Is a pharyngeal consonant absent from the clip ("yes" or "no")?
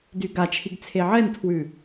no